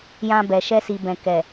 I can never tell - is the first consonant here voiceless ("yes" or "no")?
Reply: no